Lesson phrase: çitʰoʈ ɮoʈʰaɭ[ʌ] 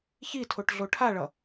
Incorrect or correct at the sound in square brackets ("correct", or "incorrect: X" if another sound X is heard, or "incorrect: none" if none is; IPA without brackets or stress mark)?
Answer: correct